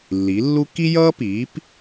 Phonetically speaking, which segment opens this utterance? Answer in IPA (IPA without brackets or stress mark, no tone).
lː